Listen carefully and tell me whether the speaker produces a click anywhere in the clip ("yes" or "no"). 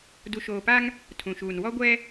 no